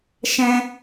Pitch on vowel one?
high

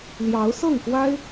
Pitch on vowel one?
rising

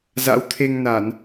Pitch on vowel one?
rising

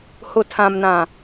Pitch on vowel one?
low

